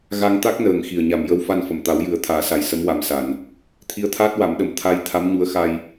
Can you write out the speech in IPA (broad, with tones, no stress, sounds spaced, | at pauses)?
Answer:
ɣ a˧ ŋ t̪ a˦˥ k̚ n əː˨˩ ŋ x i˨˩ ə̯ ɲ a˨˩ m j ə˧ w f a˧ n f ə˨˩˨ m t̪ a˨˩˦ w j ɨ˨˩˦ ə̯ t̪ʰ aː˨˩˦ s a˨˩ j s ə˧˥ m w a˨˩ m s a˨˩˨ n | t̪ʰ i˧˥ ə̯ t̪ʰ aː˦˥ t̚ w a˨˩˦ m ɗ ə˨˩ m t̪ʰ a˧ j t̪ʰ a˧˥ m ɲ u˧˥ ə̯ x a˧ j